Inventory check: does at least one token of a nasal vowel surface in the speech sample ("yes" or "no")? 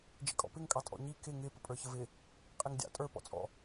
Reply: no